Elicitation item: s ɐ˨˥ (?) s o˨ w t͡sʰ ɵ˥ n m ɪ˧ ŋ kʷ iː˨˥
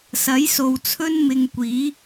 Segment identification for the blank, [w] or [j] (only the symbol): j